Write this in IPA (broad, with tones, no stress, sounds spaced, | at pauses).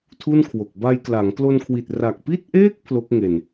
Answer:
tʰ u˥˩ n kʰ w o˨˩ k̚ b a˧ j k l a˩˦ ŋ k l o˧ n kʰ w i˨˩ t̚ r a˨˩ k̚ p i˥˩ t̚ ʔ eː˥˩ k̚ pʰ l o˦˥ k̚ ŋ e˨˩ n